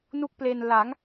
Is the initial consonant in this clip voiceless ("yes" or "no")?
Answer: no